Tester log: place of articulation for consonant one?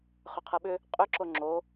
uvular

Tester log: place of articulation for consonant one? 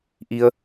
glottal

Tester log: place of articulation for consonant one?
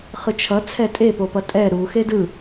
uvular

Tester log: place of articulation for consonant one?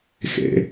velar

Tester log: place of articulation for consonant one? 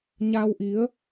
palatal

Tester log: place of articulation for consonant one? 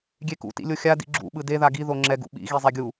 velar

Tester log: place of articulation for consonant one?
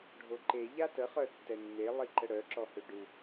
retroflex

